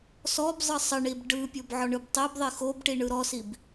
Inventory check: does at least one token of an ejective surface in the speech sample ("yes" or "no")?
no